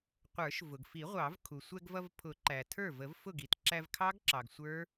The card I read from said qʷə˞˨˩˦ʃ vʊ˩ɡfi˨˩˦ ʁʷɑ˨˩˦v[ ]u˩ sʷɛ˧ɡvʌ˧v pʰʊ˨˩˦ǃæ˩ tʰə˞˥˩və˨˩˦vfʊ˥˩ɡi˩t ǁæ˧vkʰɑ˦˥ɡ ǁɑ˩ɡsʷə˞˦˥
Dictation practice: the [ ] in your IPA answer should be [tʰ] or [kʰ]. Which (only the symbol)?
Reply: kʰ